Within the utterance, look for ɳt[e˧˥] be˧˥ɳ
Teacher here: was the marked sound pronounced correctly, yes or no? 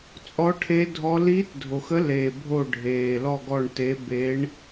yes